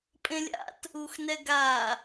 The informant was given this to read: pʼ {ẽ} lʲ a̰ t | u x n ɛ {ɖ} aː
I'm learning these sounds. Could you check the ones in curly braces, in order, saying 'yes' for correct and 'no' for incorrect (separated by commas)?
yes, no